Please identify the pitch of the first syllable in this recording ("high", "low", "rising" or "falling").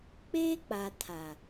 high